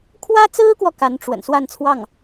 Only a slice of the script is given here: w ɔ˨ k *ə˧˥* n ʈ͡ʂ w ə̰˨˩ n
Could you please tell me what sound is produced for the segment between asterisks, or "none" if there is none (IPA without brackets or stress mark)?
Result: a˧˥